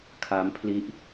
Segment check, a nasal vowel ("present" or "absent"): absent